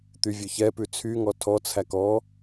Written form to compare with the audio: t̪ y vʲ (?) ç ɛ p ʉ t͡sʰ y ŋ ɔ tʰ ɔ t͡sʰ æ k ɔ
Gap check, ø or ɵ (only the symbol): ɵ